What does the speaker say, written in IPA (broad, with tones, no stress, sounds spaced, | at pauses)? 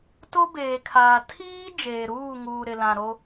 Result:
t o˦ b eː˨ kʰ aː˨ tʰ iː˦ d͡ʒ eː˨ ɾ uː˦˨ ŋ uː˨ ɾ ɪ˨ l ã˨ ɾ o˦